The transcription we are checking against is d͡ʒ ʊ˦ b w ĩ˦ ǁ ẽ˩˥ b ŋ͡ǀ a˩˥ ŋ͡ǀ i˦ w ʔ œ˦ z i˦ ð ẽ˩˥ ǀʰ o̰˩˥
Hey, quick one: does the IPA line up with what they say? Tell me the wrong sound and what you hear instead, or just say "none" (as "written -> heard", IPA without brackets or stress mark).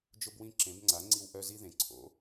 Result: none